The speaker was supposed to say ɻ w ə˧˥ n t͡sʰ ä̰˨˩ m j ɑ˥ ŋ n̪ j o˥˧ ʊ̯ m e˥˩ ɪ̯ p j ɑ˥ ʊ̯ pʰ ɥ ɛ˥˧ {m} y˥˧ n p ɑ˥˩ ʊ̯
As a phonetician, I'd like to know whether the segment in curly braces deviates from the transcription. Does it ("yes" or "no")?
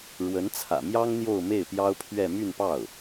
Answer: no